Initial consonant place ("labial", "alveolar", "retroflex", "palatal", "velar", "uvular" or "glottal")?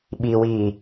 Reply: labial